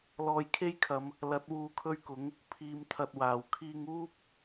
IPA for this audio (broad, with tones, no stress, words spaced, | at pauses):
lɔː˧jkʰe˥jkʰɐ˨˧m | lɐ˨˥t̚ wuː˧kʰɵ˥ɥkʊ˨˥ŋ | pʰiː˧mt̪ʰɐ˧t̚waː˨˩w kʰiː˧ŋuː˥p̚